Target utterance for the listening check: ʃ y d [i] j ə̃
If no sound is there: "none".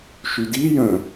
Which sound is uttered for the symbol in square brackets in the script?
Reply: i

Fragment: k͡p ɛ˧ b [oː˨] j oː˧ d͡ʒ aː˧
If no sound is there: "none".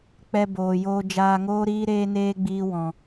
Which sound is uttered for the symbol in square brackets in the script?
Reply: oː˨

